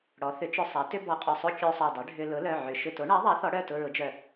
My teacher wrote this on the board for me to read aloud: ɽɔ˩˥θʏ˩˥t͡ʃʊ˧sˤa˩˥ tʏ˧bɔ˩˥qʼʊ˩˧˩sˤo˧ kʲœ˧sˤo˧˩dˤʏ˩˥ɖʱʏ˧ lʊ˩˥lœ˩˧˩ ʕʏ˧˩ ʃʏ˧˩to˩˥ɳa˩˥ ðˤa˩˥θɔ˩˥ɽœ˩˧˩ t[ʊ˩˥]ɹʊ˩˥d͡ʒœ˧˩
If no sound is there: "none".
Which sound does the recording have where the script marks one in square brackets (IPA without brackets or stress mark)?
ʊ˧